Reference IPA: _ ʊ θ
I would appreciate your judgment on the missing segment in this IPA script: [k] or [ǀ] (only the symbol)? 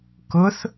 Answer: k